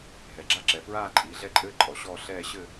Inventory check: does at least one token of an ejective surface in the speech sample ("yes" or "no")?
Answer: yes